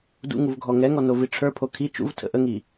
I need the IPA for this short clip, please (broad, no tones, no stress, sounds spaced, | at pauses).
d ṵ ŋ u v ɡʱ ɔ ŋ ɛ ŋ ɔ n o v i ʈ͡ʂʰ ə˞ pʰ o kʰ i t͡ʃ ṵ v tʰ ə̰ ʔ ə ŋ i